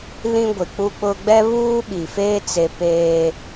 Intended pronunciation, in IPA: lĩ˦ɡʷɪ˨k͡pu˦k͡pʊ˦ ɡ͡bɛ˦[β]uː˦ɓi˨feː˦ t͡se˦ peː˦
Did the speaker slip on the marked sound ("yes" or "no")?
no